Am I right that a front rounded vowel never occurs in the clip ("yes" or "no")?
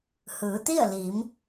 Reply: yes